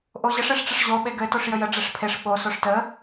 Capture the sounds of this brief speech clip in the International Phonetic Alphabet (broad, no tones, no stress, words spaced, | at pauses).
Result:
ʔoʑəʂ eʂʈ͡ʂəʂʑo ɓeɡɘ toʂjəjə ɖ͡ʐeʂpʰeʂ ɓo soʂtə